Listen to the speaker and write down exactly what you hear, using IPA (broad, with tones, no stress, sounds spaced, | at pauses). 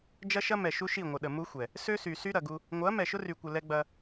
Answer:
d͡ʒ ɐ˦ ʃ ɐ˦ m ɛ˨ ʃ u˦ ʃ i˦˨ ŋʷ ə˨ ɗ ə˨ m u˦ xʷ ɛ˨ | s ø˦ s y˨ s y˦ ɾ ɐ˨ ɡ u˦ | ŋʷ ɐ˨˦ m ɛ˨ ʃ ʊ˦ r y˨ kʷ ə˨ l ɛ˦ ɡ͡b ɐ˦